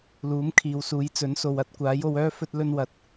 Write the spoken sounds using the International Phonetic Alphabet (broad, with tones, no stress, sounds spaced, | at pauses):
l uː˨˥ m kʰ iː˨ w s uː˨˧ j t͡s ɵ˨˥ n s o˨ w ɐ˧ t̚ kʷ aː˨˥ j o˨˧ w œː˥ f ɵ˧ t̚ l ɵ˧ n w ɐ˨˥ t̚